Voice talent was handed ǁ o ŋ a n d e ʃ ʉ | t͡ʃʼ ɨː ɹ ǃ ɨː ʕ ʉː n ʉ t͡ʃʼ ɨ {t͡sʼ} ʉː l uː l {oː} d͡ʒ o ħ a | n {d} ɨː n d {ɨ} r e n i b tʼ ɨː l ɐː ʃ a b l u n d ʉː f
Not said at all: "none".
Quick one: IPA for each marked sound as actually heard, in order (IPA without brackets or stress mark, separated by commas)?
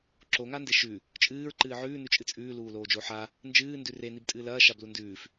t͡sʼ, oː, d͡ʒ, ʉ